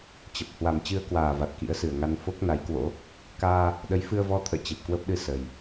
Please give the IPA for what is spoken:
t͡ɕə˨˩p̚ hwa˨˩mt͡ɕɨ˧ə̯kwaː˨˩va˨˩t̚ kḭ˧˥ə̯sɨ˨˩ə̯ŋa˧n fo˦˥k̚na˨˦jkwo̰˧˥ | kaː˧ | ɗə˨˦jfɨ˧ə̯vɔ˧t̪ʰə̰ː˧˨ t͡ɕe˨˩p̚kwə˦˥p̚ɗɨ˧ sə˨˩j

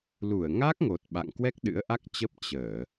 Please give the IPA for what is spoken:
lu˧˩ə̯ŋa˦˥k̚ŋo˨˩t̚ ɓa̰˧˨ŋkwɛ˦˥k̚ ɗɨ̰˧˥ə̯ʔa˦˥k̚t͡ɕə˦˥p̚ t͡ɕəː˧˩˨

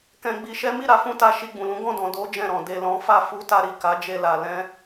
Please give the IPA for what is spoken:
kɛ̃˧ɡ͡bi˧ʃɛ˦ mi˦˨ɾa˧ fũ˧ta˧ ʃi˧ɡ͡bũ˨lũ˨˦ ɡɔ̃˦˨dɔ̃˨ do˨˦ d͡ʒɛ̃˦˨ɾɔ̃˨ de˨lɔ̃˨˦fa˦˨ fu˨˦ta˧ɾi˨ ka˨˦d͡ʒe˧la˨ lɛ̃˧

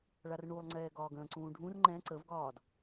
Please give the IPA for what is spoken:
ɭarɳulˠŋ͡ǀɛː ɡɒːɡə̃ːǀũː ɖʱũr ŋ͡ǃɛ̃ ǀəvɡɒːd

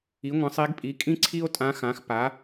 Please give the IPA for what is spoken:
i˩˥ŋʷə̃˩˥sˤi˧˥ɡpʼi˩˥ kʼĩ˥ǀʰi˥o̯tʼã˧˥xã˩˥x pa˩˥

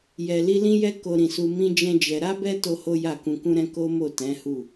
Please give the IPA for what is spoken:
jɛ˨ li˧lĩ˦jɛ˦ ko˧ɾĩ˨su˧ mĩ˦ d͡ʒɛ̃˦d͡ʒɛ˧ ɾa˦bɛ˦ to˦ho˦ja˦˨ kũ˧kũ˦ɾɛ̃˦ ko˦mo˦˨tɛ̃˨˦ hu˦˨

